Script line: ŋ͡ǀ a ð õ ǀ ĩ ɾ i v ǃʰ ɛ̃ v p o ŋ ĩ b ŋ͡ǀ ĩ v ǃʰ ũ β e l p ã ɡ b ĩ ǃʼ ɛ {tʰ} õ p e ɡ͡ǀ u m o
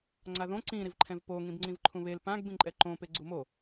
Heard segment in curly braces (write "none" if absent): ǃ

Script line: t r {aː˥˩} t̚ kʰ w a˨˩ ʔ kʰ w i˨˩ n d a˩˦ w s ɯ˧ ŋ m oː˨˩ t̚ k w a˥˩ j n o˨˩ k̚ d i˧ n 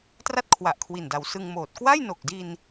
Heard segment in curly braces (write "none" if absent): a˥˩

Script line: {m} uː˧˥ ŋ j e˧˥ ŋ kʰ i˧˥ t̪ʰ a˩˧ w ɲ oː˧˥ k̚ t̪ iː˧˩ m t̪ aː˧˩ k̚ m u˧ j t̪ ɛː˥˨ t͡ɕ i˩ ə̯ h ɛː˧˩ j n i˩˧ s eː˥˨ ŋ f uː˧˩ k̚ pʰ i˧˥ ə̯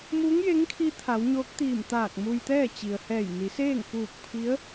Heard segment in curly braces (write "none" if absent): m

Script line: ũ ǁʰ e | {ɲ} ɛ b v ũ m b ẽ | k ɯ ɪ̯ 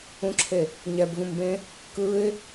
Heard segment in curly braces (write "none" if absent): ɲ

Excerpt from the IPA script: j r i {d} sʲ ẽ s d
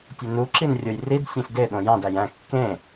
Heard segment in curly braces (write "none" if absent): d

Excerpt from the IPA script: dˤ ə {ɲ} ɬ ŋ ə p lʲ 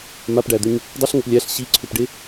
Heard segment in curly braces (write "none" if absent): none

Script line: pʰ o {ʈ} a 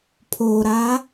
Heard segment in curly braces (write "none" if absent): ɾ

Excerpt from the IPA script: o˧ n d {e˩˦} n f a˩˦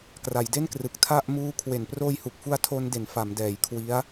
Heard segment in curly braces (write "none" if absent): e˩˦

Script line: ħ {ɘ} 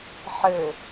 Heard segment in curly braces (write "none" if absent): ɘ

